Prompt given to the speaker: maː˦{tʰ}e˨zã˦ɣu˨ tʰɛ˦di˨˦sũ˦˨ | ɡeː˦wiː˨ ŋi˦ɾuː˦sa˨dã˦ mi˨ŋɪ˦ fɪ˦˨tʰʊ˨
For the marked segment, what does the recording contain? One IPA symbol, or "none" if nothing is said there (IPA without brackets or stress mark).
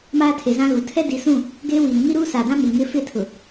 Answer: tʰ